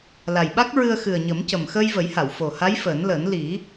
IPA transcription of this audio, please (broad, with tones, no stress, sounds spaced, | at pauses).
l a˨˩ j ɓ a˦˥ k̚ ɹ ɨ˧ ə̯ x ɨ˨˩ ə̯ ɲ ə˨˩˦ m c ə˨˩ m x əː˧ j v ə˨˩˦ j h a˨˩˨ w f o˨˩ h a˧˥ j f əː˨˩˦ n l əː˨˩˦ n l i˨˩˦